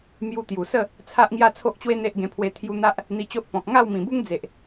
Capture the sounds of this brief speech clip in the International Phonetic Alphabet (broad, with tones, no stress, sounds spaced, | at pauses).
m j u˧ t̪ j u˨˩ s ə˥˧ | t͡sʰ a˦ ʔ ŋ j a˦ t͡sʰ o˦ ʔ t͡ɕ w e˦ n̪ e˦ ʔ ɡ ẽ˧ pʰ w e˧ t̪ʰ j u˧ n̪ a˦ ʔ | n̪ i˧ t͡ɕ o˦ ʔ p ɔ̃˨ k̚ ŋ a˥˧ w m ĩ˨˩ b u˦ ŋ d͡z e˨ ʔ